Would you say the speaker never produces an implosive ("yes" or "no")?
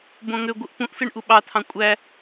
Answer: no